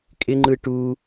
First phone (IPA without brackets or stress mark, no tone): kʼ